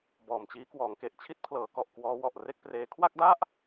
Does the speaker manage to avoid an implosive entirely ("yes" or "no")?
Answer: yes